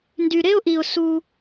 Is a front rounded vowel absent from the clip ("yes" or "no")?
no